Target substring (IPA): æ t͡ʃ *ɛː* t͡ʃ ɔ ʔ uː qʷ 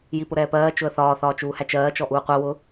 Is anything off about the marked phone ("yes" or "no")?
yes